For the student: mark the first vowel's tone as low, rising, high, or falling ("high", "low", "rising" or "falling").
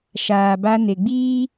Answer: low